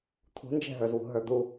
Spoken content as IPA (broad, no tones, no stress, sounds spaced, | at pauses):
t̪ʰ ṳ n d͡ʒ ɛ̤ ɦ ə˞ z w ṳ ɦ ə˞ d̪ u